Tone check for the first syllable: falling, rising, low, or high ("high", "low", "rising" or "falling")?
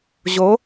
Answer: rising